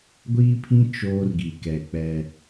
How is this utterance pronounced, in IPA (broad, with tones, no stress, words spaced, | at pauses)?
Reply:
ɡʷiː˦pʰĩ˦ t͡ʃoː˦rɡi˨kɛ˨k͡pɛ˦